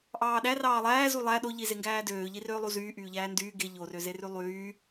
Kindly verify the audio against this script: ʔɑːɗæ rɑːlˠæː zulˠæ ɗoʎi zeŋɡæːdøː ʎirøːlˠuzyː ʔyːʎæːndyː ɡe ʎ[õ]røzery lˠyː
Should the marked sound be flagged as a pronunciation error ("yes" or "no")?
yes